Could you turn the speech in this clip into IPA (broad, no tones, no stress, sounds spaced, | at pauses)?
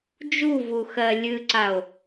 d͡ʒ u v u x ɜ lʲ ɨ ǀ a o̯